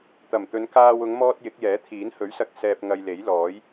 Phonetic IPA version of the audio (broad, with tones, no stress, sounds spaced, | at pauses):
t̪ ɐ˨˩ m t̪ ɵ˨˧ n k aː˧ w ʊ˨˧ ŋ m ɔː˧ t̚ j ɪ˨˥ k̚ j ɛː˨˥ t̪ʰ iː˨˥ n h ɵ˨˥ ɥ s ɐ˧ k̚ s ɛː˧ p̚ ŋ ɐ˧ j l e˨˥ j l ɔː˨˥ j